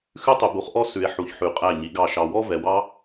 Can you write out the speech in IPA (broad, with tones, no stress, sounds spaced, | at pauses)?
x ʉ˥ tˤ ʉ˨ b u˨˥ χ ʔ ɔ˥ s ʉ˨ e̯ ħ u˨ ç ħ ʉ˨˥ qʼ æ˥˨ ɲ i˨˥ ɡ ɑ˥˨ ʃ ɑ˨ w ɔ˥ v ɛ˨ w ɑ˥